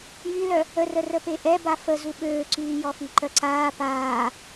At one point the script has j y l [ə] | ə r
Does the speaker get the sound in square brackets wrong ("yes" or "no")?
yes